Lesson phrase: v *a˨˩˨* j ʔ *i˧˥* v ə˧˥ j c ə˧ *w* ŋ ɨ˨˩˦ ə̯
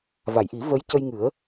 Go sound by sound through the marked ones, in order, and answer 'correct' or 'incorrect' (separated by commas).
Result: correct, incorrect, incorrect